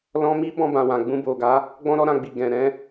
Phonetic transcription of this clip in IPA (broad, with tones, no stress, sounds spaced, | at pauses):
l ɔ̃˧ m i˦ b ɔ̃˧ b ã˨ w ã˨ ɡ͡b ũ˧ b o˨ ɡ a˨˦ | ɡ͡b ɔ̃˧ ɾ ɔ˧ ɾ ã˧ ɡ͡b i˨ ɡ ɛ̃˨ ɾ ɛ̃˧